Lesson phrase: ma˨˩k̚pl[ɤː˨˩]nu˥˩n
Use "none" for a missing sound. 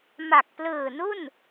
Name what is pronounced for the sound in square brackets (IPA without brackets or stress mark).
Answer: ɯː˨˩